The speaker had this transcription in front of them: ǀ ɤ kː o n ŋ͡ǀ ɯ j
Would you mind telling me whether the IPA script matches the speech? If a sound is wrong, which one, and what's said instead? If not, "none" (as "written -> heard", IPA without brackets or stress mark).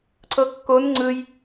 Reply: none